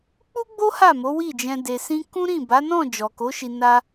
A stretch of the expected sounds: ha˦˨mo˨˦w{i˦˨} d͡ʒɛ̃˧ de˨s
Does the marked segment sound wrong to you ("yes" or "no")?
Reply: no